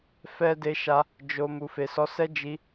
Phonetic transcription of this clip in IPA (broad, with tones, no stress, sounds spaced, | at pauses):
f ɛ˧ d e˧ ʃ a˧ | d͡ʒ o˨ m u˨ f e˨ s ɔ˨˦ s ɛ˦ d͡ʒ i˧